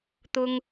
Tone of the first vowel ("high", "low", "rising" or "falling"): high